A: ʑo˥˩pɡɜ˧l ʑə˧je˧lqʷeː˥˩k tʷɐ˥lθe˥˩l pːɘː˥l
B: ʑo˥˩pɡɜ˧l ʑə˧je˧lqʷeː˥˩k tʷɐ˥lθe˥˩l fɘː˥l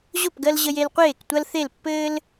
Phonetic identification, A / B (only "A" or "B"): A